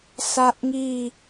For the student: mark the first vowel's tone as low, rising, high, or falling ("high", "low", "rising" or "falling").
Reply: high